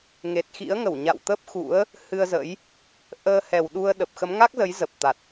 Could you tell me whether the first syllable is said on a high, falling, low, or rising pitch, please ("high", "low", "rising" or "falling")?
low